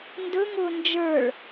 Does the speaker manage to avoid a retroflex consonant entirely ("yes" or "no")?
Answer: no